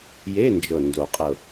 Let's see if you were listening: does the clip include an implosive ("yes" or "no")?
no